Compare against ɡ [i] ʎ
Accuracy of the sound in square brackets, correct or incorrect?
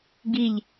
correct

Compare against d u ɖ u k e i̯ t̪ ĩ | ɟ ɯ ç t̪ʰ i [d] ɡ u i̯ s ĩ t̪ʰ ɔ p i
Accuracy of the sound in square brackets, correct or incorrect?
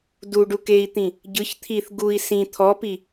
incorrect: θ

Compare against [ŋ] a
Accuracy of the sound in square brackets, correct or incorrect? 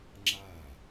incorrect: ŋ͡ǁ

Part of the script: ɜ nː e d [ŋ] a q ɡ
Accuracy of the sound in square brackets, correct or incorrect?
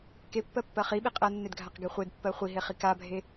incorrect: ɡʱ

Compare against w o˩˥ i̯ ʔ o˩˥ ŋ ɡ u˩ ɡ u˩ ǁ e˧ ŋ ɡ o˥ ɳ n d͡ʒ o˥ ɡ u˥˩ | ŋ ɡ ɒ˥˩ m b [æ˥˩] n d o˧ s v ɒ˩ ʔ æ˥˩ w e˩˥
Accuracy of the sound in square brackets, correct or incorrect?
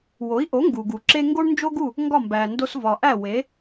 incorrect: æ˩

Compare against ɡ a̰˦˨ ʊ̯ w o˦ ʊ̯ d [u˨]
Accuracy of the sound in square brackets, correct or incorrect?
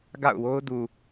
correct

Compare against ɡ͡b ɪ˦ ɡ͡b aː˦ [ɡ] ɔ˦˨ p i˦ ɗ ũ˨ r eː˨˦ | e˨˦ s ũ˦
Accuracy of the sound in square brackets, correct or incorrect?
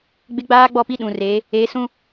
incorrect: ɡ͡b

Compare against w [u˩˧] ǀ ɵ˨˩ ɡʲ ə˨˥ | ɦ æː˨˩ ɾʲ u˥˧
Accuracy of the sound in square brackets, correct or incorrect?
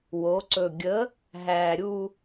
incorrect: o˩˧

